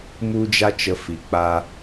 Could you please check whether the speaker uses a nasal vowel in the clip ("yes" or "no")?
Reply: no